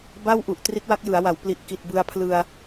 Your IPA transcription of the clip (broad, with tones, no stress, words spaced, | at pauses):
ba˥˩wʔu˨˩ʔ tri˦˥t̚wa˦˥k̚jɯ˩˦a̯wa˩˦w pli˨˩ʔki˨˩t̚bɯ˧a̯ pʰlɯ˧a̯